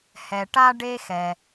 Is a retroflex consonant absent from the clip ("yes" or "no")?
no